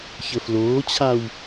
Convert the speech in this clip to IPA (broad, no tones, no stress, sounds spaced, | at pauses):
ç ə f l oː t͡ɕʰ a w